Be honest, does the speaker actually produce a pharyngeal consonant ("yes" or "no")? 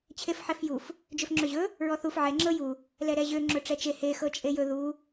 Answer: yes